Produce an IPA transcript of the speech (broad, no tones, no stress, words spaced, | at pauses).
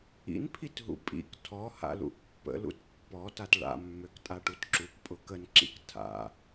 ḭnpʰitɦṵ pʼḭk tʰɔha̰lṵʔ pːə̰lṵt pːɔtat ɭa̰mːøktʼaʈut ǁukpʼʊ kənǁḭk tʰa̰